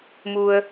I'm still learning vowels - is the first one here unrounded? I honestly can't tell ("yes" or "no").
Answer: no